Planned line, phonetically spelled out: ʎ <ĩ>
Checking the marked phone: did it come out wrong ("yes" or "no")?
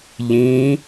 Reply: no